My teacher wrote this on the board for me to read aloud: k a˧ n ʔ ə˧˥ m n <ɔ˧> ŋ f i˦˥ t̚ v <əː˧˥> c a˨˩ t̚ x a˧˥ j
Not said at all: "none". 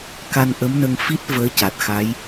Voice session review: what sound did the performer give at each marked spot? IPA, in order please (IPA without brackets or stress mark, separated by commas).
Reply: ə˧, əː˧˥